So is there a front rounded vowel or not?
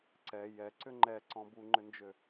yes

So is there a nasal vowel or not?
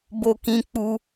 yes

